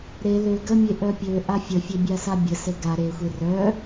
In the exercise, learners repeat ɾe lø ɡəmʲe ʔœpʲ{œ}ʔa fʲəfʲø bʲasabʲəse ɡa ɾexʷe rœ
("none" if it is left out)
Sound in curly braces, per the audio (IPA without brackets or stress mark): ø